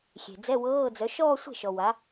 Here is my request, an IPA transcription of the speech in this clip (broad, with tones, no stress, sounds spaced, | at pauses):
xʲ e̤˨ d͡z ɛ˧˥˧ w ɤː˧˥˧ d͡z œ˨˥ ʃ ɔː˥˧ sʷ e̤˥˩ ʃ ɔ˨ w a˨˥